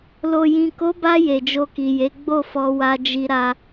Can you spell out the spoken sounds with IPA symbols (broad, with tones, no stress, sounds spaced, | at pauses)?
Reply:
l o˨ j ĩ˨ k o˨˦ b a˧ j e˨ d͡ʒ o˧ k i˨ j e˨˦ ɡ͡b o˦˨ f ɔ˧ w a˧ d͡ʒ i˧ ɾ a˧